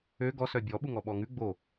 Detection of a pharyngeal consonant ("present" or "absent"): absent